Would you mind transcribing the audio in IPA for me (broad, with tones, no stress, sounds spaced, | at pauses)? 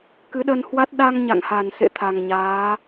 k ɨ˨˦ ɗ ə˧ n h w a˦˥ t̚ ɗ a˧ ŋ ɲ a̰˧˨ ŋ h a˨˩ n s ḛ˧˨ t̪ʰ a˨˩ ŋ ɲ aː˨˦